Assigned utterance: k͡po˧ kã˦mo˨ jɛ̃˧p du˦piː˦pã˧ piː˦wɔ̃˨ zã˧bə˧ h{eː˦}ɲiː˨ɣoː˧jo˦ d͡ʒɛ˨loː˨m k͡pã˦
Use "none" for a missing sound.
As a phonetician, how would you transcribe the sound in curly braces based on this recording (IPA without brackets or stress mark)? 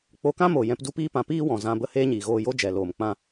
eː˦